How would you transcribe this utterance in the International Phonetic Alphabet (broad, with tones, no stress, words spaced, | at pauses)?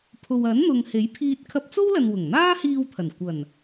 pʰo˨wɐ˨˥nn̪ʊ˨ŋ he˨˥jpʰiː˧t̚ kʰɐ˧p̚t͡so˥wlɐ˨n wʊ˨˩ŋn̪aː˥hiː˧wt̪ʰɐ˨˩n kʷɐ˨˩n